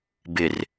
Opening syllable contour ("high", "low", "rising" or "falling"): low